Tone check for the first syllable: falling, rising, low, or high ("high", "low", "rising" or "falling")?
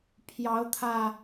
rising